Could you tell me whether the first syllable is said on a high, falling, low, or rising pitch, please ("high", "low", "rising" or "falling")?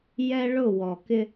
high